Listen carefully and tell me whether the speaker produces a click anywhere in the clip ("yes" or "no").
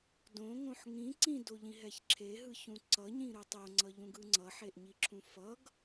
yes